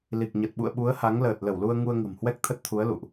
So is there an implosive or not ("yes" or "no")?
yes